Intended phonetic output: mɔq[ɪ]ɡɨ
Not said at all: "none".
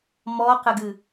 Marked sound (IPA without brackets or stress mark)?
ɪ